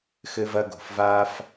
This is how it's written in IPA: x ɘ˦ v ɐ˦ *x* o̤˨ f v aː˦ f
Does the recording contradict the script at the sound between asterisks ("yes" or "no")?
yes